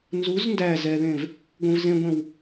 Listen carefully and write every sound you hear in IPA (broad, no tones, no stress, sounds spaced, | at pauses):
n z u z n d æ z ɛ ð ẽ v | ɡʷ ẽ v z ẽ ɡʷ ẽ w